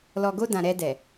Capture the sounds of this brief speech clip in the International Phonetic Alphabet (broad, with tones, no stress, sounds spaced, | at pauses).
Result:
l ɔ˨ ɡ o˧ d ã˨ ɾ ɛ˧ d ɛ˨